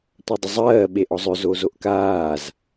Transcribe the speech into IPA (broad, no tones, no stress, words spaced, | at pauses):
tʷɜdˤəzˤɜː ɓeʔɔzˤʏ zozoʔkaːz